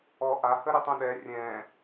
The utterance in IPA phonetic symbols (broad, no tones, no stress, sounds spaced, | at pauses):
ɔ ʔ a h ə ɾ ʏ tˤ õ ɗ ɛ rʲ ɛ̃